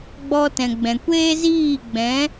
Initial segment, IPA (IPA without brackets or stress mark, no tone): ɡ͡b